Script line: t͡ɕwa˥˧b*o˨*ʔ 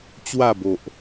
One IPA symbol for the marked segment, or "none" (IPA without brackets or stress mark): o˨